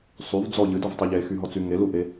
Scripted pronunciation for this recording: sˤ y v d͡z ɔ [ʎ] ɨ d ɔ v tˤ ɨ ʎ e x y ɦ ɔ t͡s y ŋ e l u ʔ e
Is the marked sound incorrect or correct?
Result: correct